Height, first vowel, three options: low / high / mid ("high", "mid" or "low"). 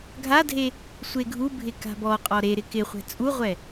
low